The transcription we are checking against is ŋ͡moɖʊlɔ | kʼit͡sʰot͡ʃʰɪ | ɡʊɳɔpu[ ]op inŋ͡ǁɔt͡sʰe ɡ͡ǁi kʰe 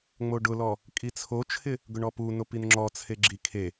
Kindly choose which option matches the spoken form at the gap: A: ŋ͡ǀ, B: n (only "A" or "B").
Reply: B